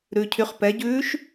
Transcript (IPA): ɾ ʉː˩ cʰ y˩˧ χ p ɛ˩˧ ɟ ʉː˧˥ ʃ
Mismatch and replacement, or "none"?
none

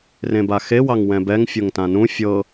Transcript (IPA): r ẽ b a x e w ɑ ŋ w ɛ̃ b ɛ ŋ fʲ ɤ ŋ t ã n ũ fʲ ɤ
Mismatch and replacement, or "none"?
none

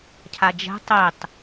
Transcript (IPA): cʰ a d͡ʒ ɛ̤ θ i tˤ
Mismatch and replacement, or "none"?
θ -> tˤ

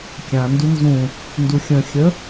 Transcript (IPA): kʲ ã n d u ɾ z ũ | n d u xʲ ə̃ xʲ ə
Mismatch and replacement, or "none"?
ɾ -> n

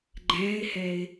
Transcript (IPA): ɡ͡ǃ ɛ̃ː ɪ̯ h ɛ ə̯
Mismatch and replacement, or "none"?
ə̯ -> ɪ̯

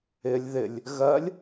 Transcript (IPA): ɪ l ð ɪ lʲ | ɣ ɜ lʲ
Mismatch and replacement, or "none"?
l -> lʲ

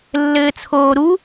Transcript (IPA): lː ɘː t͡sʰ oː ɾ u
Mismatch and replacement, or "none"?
none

